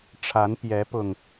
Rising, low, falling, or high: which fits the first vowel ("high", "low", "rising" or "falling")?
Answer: rising